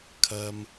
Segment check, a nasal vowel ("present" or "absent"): absent